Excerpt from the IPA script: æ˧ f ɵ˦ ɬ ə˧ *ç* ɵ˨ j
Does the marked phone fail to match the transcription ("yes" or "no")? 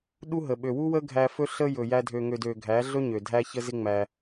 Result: yes